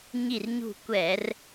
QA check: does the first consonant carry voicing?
yes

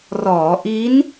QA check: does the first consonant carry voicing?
yes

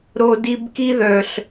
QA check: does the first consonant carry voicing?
yes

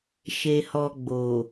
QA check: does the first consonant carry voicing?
no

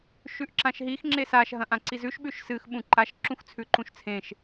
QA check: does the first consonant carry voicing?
no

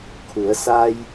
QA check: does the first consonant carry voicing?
no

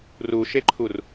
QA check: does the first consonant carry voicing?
yes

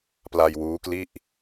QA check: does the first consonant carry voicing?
no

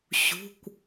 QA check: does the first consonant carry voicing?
no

